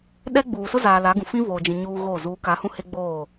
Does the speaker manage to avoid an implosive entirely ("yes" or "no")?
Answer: no